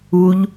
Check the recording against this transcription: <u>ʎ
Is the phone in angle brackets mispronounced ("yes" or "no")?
no